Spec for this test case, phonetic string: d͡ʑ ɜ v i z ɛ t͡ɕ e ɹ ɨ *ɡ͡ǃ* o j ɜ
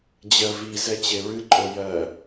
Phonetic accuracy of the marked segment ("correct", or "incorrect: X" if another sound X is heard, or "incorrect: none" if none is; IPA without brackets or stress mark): incorrect: ǃʼ